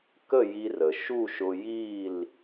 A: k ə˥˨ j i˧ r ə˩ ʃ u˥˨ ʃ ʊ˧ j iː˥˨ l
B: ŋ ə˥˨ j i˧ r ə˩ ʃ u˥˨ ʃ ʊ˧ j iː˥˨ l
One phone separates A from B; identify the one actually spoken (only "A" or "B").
A